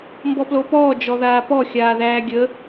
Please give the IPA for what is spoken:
m b ɔ p l o p ɔː d͡ʒ ɔ ð aː p ɔ xʲ aː ð æː ɡʲ ə

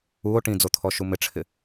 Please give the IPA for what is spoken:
u o̯ ʈ ĩ d͡z o t̪ʰ ɔ ʃ u m ɪ ʈ͡ʂʰ ɪ

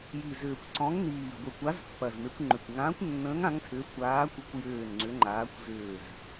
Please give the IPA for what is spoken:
j i˨˩ z ʏː˨˩ kʷ ǀ ɔ̃˨˦ ŋ n iː˨˩ ɡʷ ɪ˨˩ kʷ a˨˦ z pː ɐ˨˩ z m e˨˦ kʷ ŋ͡ǃ ʏ˨˩ kʷ ŋ ãː˨˦ kʷ nː ə̃ː˨˦ ŋ ã˨˦ ŋ tʰ ʏː˨˦ kʷ aː˨˦ kʷ ə˨˦ kʷ j ʏː˨˩ n ŋ͡ǀ ʏ˨˦ ŋ͡ǃ aː˨˦ kʷ z ʏː˨˩ z

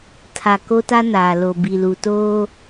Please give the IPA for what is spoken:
tʰ a˨ k o˦ t a˦ n aː˨ l o˨ b i˨ l u˨ t oː˦

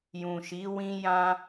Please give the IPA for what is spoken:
j ũ˨ ʃ i˨˦ w ĩ˦ j ã˦

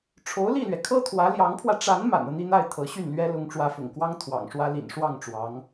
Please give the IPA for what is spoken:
ʈ͡ʂʰ o˧˥ ʊ̯ l i˥˩ l ɥ ɛ˩ kʰ ɤ˥ t̪ʰ w ä˧˥ l j ɑ˧˥ ŋ pʰ w ä˧ ʈ͡ʂ a˧˥ n m a̰˨˩ n ɤ˦ n̪ i˥˧ n̪ a˥˩ ɪ̯ t̪ʰ ɤ˧˥ ɕ y˥˩ n l ɥ ɛ˥ l ʊ˧˥ ŋ ʈ͡ʂ w ä˧˥ f ʊ̰˨˩ ŋ k w ɑ˥ ŋ t̪ʰ w ɑ̰˨˩ ŋ ʂ w ä˥ l ḭ˨˩ n ʂ w ɑ˥˩ ŋ ʈ͡ʂ w ɑ˧˥ ŋ

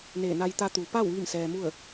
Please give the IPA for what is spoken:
n eː˧˩ n a˧ j t̪ a˧ t̪ u˩ p a˥˨ w ʋ i˥˨ m s ɛː˧ m u˥˨ ə̯

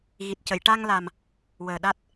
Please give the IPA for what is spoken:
ɣ i˨˩ t̚ c ə˨˩˨ j ʈ a˧ ŋ l a˨˩ m | w əː˨˩ ɗ a˦˥ t̚

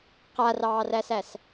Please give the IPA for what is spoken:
q a r ɑː r æ s æ s

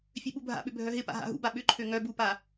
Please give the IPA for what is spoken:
fʲ ø ɓ u bʱ a̰ ɓ ʏ bʱ œ ɦ ɪ p a̰ ɦ a̰ ɦ ṵ b a ɓ ʏ ǃʰ ø ŋ œ b u p a

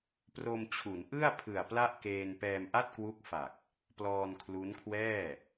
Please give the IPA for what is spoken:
p r o˧ m t͡ɕʰ u˩˦ n ʔ ɯ˥˩ a̯ pʰ ɯ˨˩ a̯ p l a˥˩ ʔ k eː˧ n p ɛː˧ m ʔ a˥˩ t̚ k w u˦˥ k̚ f a˨˩ k̚ | p l ɔː˧ n kʰ l u˦˥ n kʰ w ɛː˥˩

